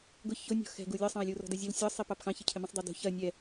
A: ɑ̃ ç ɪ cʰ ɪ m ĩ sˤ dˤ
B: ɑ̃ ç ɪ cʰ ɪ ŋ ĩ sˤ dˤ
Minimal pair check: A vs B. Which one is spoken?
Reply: A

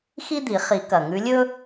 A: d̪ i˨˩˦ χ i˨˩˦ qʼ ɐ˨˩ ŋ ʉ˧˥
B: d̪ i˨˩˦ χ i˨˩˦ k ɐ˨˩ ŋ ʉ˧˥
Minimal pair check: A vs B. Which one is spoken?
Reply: B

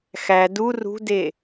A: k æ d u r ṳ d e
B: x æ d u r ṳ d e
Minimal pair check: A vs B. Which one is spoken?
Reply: B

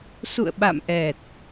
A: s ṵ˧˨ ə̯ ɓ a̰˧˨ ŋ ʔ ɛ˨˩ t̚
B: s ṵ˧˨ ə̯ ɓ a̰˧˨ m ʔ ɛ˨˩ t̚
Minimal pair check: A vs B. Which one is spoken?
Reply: B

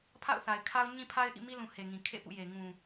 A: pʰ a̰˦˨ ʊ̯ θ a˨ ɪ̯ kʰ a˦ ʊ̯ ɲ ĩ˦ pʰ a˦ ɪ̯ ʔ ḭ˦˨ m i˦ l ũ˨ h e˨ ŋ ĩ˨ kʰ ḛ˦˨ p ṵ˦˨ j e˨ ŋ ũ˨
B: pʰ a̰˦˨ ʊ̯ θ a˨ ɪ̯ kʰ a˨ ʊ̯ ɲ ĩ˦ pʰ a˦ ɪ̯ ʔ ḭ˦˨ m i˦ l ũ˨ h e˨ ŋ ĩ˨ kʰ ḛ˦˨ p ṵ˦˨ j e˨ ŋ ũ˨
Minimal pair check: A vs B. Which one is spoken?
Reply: A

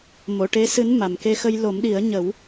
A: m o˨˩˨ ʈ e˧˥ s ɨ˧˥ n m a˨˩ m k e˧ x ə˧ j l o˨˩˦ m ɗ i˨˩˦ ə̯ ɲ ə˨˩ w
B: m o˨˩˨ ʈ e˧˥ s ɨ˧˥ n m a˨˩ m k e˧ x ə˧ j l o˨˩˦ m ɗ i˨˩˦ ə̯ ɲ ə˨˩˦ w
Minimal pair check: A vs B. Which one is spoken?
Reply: B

